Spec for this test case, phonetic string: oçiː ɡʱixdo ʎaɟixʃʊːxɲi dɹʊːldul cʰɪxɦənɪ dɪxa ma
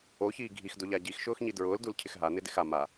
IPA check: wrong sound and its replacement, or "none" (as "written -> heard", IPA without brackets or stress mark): ə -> a